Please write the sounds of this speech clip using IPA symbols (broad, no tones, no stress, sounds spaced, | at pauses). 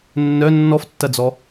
nː œ nː ɔ f tː ɐ d͡z ɔ